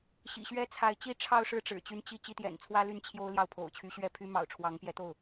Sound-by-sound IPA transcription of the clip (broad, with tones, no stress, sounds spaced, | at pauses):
ɕ ḭ˨˩ ɕ ɥ ɛ˥ t͡sʰ a˧˥ ɪ̯ t͡ɕ i˥ ʈ͡ʂʰ ɑ˥˧ ʊ̯ ʂ ɻ̩˥˩ ʈ͡ʂ ɻ̩˨˩ t͡ɕ y˧˥ n t͡ɕ i˥˧ t͡ɕ i˥˩ t̪ j ɛ̰˨˩ n t͡sʰ w ä˥ l y˥˩ n t͡ɕʰ j o˥ ʊ̯ l j ɑ˥˩ ʊ̯ pʰ o̰˨˩ ʊ̯ t͡ɕʰ y˧˥ ɕ ɥ ɛ˥˩ pʰ y˥ m ɑ̰˨˩ ʊ̯ ʈ͡ʂʰ w ɑ˧˥ ŋ p j ɛ˧˥ t̪ o˥˩ ʊ̯